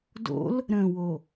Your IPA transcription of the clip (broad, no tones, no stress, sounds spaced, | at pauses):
d o̰ l | ɾ ə̃ w o